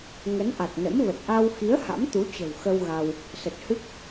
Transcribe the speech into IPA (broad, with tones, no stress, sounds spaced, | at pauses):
ŋ ə˨˦ n ʔ a˨˩ t̚ n ə̰˧˥ m v ə˨˩ t̚ ʔ a˧ w x i˨˦ ə̯ h a̰˧˥ m t̪ u˨˦ t͡ɕ ə̤˨˩ w x ə˧ w ɣ a˧ w | s ə˨˩ t̚ h ɨ˦˥ k̚